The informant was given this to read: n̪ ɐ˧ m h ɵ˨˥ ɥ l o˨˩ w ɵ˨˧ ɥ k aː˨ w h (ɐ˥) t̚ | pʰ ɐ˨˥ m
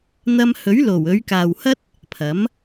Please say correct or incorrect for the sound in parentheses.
correct